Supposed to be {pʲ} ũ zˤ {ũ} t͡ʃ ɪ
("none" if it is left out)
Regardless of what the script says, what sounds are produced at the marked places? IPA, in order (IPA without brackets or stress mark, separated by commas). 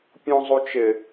pʲ, u